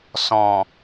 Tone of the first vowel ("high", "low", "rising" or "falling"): low